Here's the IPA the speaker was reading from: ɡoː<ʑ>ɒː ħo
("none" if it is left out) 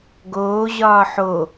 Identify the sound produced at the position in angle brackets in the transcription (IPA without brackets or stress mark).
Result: ʑ